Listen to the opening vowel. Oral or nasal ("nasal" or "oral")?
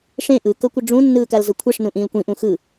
nasal